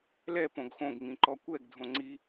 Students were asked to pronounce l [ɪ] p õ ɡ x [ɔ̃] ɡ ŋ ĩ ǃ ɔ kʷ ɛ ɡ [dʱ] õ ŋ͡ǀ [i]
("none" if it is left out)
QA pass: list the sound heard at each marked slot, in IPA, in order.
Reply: ɛ, õ, dʱ, i

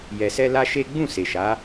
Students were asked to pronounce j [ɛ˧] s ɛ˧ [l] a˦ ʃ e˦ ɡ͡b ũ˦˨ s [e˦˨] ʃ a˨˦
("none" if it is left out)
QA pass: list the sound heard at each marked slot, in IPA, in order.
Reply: ɛ˨, l, e˨

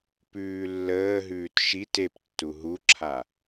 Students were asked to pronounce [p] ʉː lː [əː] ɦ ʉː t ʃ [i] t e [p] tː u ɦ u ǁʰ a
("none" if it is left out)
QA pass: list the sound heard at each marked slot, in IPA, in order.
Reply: p, əː, i, p

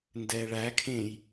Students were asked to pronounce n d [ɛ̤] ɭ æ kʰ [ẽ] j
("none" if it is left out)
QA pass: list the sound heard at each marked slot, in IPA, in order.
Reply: ɛ, ẽ

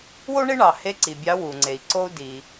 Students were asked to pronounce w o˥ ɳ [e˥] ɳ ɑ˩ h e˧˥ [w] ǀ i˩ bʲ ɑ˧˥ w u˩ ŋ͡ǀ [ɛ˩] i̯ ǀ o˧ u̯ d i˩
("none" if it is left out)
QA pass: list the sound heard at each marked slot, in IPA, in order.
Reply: e˥, none, e˩

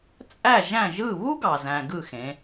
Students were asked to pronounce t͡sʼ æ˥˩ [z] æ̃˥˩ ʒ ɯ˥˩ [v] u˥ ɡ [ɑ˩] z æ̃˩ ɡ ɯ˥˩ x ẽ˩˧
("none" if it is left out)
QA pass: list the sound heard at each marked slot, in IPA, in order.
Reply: ʒ, β, ɑ˩

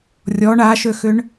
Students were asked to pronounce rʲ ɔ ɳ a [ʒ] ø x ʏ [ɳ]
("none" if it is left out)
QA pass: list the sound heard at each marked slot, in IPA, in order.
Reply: ʃ, ɳ

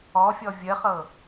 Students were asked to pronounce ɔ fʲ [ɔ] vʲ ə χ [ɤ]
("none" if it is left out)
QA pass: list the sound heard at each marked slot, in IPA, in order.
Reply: ɔ, ɤ

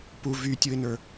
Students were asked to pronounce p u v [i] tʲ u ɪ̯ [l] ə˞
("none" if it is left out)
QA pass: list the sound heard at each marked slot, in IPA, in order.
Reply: y, n

